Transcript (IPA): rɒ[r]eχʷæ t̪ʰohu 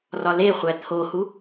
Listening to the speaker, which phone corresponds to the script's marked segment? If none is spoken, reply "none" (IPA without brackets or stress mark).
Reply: l